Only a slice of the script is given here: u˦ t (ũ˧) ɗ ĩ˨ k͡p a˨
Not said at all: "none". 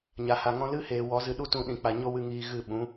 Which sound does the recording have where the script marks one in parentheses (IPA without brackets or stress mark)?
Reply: ũ˧